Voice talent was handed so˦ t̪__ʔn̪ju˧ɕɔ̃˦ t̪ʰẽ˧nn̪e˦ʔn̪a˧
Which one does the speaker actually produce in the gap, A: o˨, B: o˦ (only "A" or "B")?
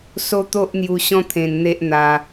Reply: B